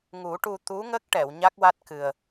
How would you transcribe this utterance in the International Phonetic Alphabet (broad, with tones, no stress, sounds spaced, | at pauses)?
ŋ u˨˩˦ ʈ u˧ t̪ u˧˥ ŋ ə˦˥ k̚ ʈ ɛ˨˩˨ w ɲ a˦˥ k̚ w a˦˥ t̚ k ɨ˨˩ ə̯